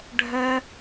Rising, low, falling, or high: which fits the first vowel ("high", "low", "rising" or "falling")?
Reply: high